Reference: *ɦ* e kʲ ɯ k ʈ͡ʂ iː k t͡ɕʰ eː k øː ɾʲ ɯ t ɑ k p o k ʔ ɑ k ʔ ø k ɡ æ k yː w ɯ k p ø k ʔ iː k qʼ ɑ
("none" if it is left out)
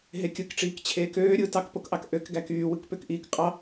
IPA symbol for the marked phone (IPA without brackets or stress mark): ɦ